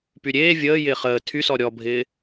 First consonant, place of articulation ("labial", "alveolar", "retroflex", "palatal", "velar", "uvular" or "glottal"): labial